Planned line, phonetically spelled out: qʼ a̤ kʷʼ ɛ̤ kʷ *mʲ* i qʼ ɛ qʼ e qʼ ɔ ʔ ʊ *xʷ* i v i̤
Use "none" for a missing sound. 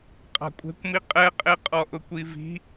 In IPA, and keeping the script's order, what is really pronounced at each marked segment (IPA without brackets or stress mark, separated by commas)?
m, kʷ